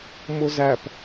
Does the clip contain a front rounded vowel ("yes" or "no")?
no